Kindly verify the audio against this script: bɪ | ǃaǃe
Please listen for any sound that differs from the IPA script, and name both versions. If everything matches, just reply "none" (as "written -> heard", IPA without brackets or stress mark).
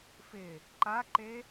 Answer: b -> f